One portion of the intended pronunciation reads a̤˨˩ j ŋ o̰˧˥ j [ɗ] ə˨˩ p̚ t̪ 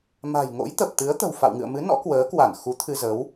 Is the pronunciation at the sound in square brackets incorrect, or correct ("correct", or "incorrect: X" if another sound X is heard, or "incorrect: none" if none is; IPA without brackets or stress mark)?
incorrect: t̪